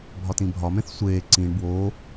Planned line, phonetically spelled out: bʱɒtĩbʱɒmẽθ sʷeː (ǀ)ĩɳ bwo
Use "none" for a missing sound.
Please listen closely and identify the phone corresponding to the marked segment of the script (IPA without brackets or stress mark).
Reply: ǀ